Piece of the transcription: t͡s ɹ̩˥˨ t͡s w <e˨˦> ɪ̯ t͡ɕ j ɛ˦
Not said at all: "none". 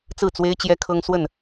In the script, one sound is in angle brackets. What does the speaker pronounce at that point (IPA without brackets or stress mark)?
e˦